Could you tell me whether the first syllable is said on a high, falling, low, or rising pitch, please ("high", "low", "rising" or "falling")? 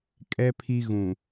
low